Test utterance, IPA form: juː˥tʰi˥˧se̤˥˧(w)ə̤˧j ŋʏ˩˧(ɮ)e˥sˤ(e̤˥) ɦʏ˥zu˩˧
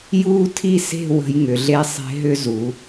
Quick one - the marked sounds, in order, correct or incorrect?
correct, correct, correct

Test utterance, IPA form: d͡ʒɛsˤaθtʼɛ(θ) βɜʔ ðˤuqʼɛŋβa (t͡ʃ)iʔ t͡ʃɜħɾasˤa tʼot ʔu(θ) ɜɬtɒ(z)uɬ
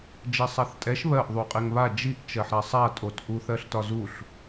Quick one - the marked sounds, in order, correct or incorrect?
incorrect, incorrect, correct, correct

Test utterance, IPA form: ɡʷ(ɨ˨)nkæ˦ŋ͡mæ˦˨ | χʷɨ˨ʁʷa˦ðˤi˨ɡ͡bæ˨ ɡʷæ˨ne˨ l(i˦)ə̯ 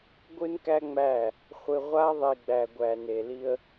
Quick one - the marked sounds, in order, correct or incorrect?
incorrect, correct

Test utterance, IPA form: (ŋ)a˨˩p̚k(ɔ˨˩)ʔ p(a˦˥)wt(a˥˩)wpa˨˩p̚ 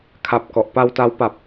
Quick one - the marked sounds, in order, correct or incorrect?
incorrect, correct, incorrect, incorrect

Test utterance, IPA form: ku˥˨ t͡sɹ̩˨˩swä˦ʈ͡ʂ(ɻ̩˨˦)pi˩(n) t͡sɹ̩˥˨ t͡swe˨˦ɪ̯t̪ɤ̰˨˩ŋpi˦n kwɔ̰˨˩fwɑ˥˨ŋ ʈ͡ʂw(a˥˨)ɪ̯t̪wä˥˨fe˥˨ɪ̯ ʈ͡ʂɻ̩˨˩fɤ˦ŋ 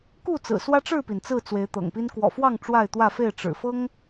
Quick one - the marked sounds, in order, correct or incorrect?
incorrect, correct, correct

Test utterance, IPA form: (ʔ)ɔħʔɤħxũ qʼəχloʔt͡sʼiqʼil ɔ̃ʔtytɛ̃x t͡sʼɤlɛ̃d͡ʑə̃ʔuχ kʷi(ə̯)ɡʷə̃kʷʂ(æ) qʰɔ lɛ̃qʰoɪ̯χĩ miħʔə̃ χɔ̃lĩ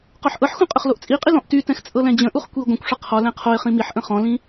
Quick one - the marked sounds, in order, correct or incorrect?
incorrect, incorrect, incorrect

